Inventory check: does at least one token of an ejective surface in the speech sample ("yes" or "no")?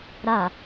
no